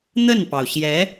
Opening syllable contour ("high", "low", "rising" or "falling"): falling